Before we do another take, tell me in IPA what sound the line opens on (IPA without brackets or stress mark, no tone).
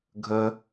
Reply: ɡʱ